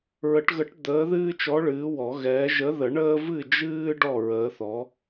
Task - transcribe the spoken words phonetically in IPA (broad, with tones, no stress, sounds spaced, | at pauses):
ɹ ə˨˩˦ ʈ ɣ ə˨˥ ʈ d̪ əː˨˥ ð ɨː˦ t͡ʃ ɔ˨˥ ɭ ɨː˨˥ w ɔ˨˩˦ ɣ ɛː˨˥ ʒ ə˨˥ ð ə˨˩˦ ɳ əː˦ v ɨ˥˩ d͡ʒ ɨː˦ ɖ ɔ˥˩ ɹ əː˨˥ θ ɔ˨˥